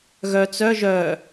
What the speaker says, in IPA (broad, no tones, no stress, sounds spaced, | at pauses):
ɣ œ t͡s œ ʒ œ